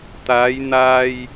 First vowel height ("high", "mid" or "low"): low